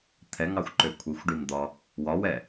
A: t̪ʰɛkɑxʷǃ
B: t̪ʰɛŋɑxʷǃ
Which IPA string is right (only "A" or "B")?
B